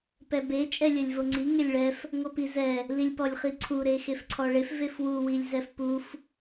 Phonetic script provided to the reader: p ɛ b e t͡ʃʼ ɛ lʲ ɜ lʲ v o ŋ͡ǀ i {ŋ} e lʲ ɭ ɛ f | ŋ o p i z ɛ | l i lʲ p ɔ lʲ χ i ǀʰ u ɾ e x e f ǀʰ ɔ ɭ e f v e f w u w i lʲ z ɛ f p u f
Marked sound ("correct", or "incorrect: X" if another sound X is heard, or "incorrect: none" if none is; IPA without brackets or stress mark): correct